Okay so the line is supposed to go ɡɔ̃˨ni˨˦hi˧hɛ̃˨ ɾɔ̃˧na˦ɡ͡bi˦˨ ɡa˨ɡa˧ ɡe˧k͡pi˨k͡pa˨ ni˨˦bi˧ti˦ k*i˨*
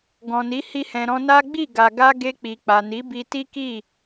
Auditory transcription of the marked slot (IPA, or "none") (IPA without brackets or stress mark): i˦˨